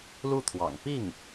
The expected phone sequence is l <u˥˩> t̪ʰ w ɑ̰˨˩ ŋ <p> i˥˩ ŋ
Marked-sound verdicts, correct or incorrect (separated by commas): correct, correct